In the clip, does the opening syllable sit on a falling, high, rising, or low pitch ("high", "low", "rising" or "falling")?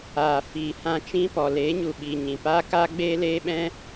low